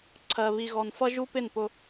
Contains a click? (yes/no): yes